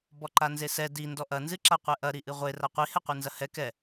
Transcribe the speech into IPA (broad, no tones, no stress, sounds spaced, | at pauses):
b ɔ ǃ a n z e s ɛ d i n d ɔ ʔ ɐ n z ɨ ǁ a qʷ ɛ ʔ ɐ ɾ i ʔ ɨ ʁʷ e r a qʷ i h ɛ qʷ ɨ n z ɐ h ɛ k ɛ